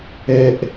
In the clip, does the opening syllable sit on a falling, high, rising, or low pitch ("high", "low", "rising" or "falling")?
high